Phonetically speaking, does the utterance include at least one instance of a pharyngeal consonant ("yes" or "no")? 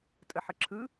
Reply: yes